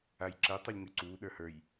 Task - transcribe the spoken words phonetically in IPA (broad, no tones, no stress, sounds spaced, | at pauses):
a j ǁ ɛ tˤ ʉ lʲ ŋ ʉ ǀ uː ɗ ə˞ h ə˞ j